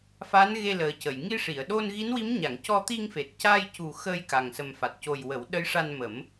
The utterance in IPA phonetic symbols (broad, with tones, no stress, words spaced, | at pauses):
fa˧˥nɣe˧ləː˨˩cə˨˩˨j ŋi˧ʂi˨˩˨ə̯ɗo˧n ɣi˧˥nwi˧˥mɲa˨˩˨ŋ cɔ˧t̪i˧ŋfe˨˩t̚ ca˧jcu˨˩ xə˧j ka˨˩ŋ sə˨˩m fa˨˩t̚co˨˩jwə˨˩˦w ɗə˧˥jʂa˧nmə˨˩˦m